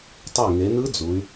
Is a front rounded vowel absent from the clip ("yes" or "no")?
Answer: no